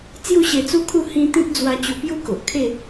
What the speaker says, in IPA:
t͡s j u˥˧ ɕ e˧ t͡s u˦ kʰ u˥˧ h ĩ˧ t̪ ĩ˦ t̚ d͡z w a˧ t͡ɕ u˧ p j u˦ k o˨ ʔ kʰ e˥˧

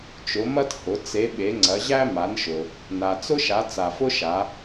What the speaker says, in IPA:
t͡ʃ ʊ˩˧ m ɐ˦ t h ʊ˩˧ t͡s e˩˧ ɓ e˩˧ ŋ͡ǀ ɐ˩˧ ʑ æ˦ m a˩˧ n ʃ ʊ˩ | n a˩ t͡s ʊ˦ ʃ a˩˧ t͡s a˩ f ʊ˦ ʃ a˩˧

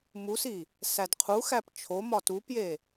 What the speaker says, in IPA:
m u s i | s æ d qʰ u x æ p t͡ʃʰ o m ɒ t u p j e

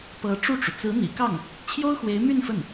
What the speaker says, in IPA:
p ɤ˧˥ ʈ͡ʂ u˥˩ ʈ͡ʂ u˩ t͡s ɹ̩˧˥ n̪ ḭ˨˩ k ɑ˥˩ ŋ | t͡ɕʰ j o˥ ʊ̯ x w e˧˥ ɪ̯ m y˥˧ n f ə˥˩ n

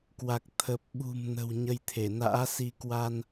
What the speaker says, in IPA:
k w a˨˩ k̚ t̪ʰ ə˨˩ p̚ ɓ ṳ˨˩ m n ə̤˨˩ w ɲ ə˧ j t̪ʰ e˧˩ n a̰ː˧˥ s i˧ k w a˧ n

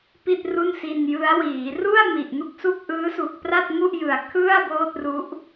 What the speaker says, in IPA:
p i˥˩ t̚ r u˥˩ n s i˧ n j ɯ˦˥ a̯ w iː˩˦ r u˥˩ a̯ m i˨˩ ʔ n u˥˩ k̚ s u˥˩ k̚ ʔ ɯː˦˥ s u˨˩ k̚ p r a˥˩ t̚ ŋ u˥˩ ʔ j ɯ˨˩ a̯ kʰ ɯ˥˩ a̯ b oː˥˩ t̚ r u˦˥ ʔ

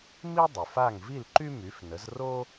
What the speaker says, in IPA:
m i˥ dˤ y˩ f a˥˩ ŋ v i˥˩ l ǃ y˥ m y˩˥ f n ə˩˥ z r o˥

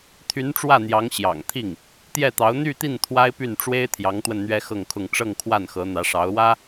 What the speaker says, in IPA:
t̪ʰ y˧˥ n ʈ͡ʂ w ä˥˩ n̪ j ɑ˧˥ ŋ ɕ j ɑ̰˨˩ ŋ t̪ʰ i˥˩ ŋ | t̪ j ɛ˥˩ t̪ ɑ˧˥ ʊ̯ n̪ y˥˧ t̪ i˥˩ n t̪ʰ w a˥ ɪ̯ p y˥˩ n ʈ͡ʂ w e˥ ɪ̯ t̪ʰ j ɑ˧˥ ŋ t̪ w ə˧ n n̪ ɥ ɛ˥ x ɤ˥˧ ŋ kʰ ʊ˥˧ ŋ ʈ͡ʂ ɤ˥˧ ŋ kʰ w a˥˩ n x ɤ˧˥ n̪ ä˧˥ ʂ ɑ˧˥ ʊ̯ w ä˥

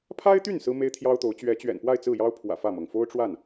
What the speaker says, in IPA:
pʰ a˥ ɪ̯ t̪ y˥˩ n s ɹ̩˥ m e˥ ɪ̯ t̪ʰ j ɑ˥ ʊ̯ t̪ o˧˥ ʊ̯ t͡ɕ ɥ ɛ˧˥ t͡ɕ ɥ ɛ̰˨˩ n p w a˥˧ ɪ̯ t͡s ɹ̩˥˩ j ɑ˥ ʊ̯ pʰ w ä̰˨˩ f ä˥˩ m ɤ˩ ŋ f o˥ ʊ̯ ʈ͡ʂ w a˥˩ n

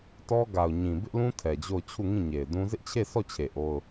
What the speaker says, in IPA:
t ɔ˦ ɡ a˨ ʊ̯ ɲ ĩ˨ b ɪ˦ ʔ l ũ˦ tʰ ɛ˨ d͡ʑ o˦˨ ʊ̯ t͡ɕʰ u˦˨ ŋ ĩ˦˨ ɲ e˨ ɪ̯ d ũ˦ z ɪ˦ ʔ t͡ɕʰ e˦˨ sʰ ɔ˦˨ t͡ɕʰ e˨ ʔ o˦ ʊ̯

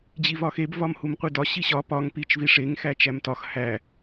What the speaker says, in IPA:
d͡ʑ i v ɒ x e b v ɒ m h u m qʷ i d ɒ ɕ i ɕ ɒ p ɒ ŋ p i t͡ʃ v i ʂ e ŋ x æ t͡ʃ æ m t ɒ x h æ

